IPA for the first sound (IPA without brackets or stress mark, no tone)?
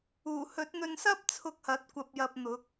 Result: uː